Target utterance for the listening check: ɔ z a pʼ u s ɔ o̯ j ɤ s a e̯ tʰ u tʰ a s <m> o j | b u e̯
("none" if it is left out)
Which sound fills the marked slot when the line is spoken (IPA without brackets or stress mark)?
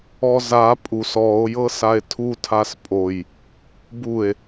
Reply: pʼ